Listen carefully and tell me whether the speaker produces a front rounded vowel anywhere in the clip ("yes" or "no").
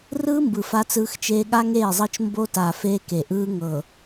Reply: no